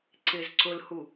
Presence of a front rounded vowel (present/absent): absent